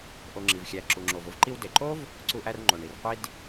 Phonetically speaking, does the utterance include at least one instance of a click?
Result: yes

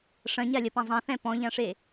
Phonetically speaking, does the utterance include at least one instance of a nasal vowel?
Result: yes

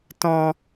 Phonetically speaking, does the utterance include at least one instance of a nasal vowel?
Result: yes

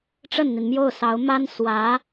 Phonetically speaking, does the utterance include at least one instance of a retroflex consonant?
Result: yes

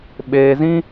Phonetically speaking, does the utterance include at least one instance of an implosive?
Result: yes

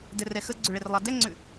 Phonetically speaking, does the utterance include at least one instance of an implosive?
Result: no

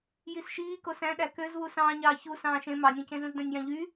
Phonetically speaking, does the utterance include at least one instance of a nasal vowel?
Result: yes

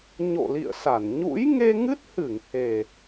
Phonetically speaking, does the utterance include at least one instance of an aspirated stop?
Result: no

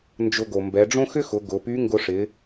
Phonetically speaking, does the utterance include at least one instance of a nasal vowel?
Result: yes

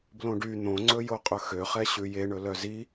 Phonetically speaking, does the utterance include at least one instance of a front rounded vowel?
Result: yes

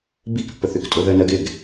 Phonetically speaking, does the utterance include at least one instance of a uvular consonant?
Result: no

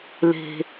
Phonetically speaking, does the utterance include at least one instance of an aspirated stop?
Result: no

